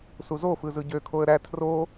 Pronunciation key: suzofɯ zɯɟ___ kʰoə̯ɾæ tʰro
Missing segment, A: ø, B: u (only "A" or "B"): A